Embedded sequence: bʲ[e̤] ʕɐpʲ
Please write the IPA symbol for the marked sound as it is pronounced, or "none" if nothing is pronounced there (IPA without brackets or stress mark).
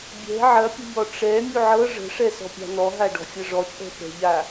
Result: ɛ̤